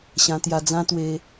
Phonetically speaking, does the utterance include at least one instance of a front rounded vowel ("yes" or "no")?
no